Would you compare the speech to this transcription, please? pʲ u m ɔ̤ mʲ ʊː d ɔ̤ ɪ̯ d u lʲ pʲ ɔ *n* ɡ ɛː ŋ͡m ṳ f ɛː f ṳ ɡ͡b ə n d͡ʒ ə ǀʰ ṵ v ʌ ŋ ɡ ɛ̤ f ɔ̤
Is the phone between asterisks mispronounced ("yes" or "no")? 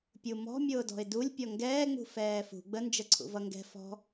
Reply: yes